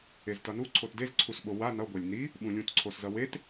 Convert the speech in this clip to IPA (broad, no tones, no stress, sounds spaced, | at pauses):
e z t ʌ n u ǀʰ o t d e z ǀʰ u s ɓ o w a n ʌ ɡʷ a lʲ n i | ɓ ũ lʲ ũ t ǀʰ o s z ʌ w e t